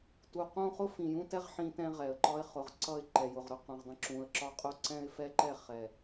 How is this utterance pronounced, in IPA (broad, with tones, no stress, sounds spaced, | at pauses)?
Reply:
t u˨ q ũ˦ χ ʊ˦ f ĩ˨ j ũ˦ t ɛ˦ ʁ ħ ĩ˦ t ɛ̃˦ ʁ ɛ˨ ə̯ ǃ ɒ˦ ɪ̯ χ ʊ˨ ʁ ǀ ʌ˦˨ ɪ̯ ǃ ɛ˨ j ʊ˨ ʁ ɾ ʊ˦ q ũ˨ ʁ dˤ ə̃˦ ǁ ũ˨ ə̯ ǁ ɒ˦ qʼ ʊ˦ ǀ ɛ̃˦ ɪ̯ f ɛ˦ ǃ ɛ˦˨ χ ɛ˨